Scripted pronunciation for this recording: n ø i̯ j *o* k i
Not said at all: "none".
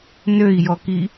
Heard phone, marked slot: ɔ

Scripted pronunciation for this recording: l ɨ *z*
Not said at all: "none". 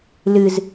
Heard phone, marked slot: z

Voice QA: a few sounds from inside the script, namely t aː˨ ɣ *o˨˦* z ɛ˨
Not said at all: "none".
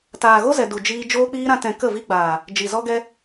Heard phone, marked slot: o˦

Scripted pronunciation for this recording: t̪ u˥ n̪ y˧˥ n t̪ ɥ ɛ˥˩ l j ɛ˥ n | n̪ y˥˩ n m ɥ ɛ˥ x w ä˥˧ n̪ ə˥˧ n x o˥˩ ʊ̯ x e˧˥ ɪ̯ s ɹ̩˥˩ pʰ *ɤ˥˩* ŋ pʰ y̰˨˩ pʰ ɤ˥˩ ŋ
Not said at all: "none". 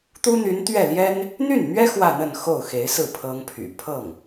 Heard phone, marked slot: ɤ˥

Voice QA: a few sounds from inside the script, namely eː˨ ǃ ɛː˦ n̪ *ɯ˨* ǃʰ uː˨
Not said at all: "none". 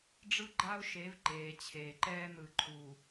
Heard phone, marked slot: ɯ˨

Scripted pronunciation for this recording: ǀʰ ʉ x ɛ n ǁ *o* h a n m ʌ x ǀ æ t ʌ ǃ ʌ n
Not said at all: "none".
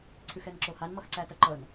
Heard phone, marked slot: o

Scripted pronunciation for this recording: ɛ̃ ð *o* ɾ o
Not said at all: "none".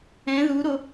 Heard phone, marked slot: u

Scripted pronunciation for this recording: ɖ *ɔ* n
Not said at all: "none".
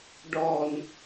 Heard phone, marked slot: ɔ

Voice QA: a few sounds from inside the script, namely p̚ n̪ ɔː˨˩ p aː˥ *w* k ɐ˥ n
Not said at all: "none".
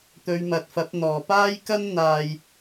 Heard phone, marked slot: j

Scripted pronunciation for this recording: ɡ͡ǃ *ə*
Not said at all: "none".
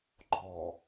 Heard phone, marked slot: ɔ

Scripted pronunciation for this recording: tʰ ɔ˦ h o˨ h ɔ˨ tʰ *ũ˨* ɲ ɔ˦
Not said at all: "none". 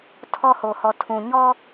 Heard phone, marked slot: ũ˨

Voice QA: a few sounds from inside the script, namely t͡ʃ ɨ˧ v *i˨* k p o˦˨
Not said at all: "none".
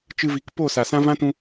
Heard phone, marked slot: i˨˦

